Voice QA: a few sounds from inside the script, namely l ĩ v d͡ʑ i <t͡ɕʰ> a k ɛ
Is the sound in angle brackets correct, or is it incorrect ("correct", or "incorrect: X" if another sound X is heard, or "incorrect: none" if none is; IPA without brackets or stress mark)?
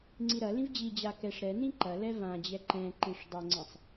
incorrect: d͡ʑ